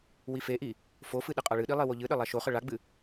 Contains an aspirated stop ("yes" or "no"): no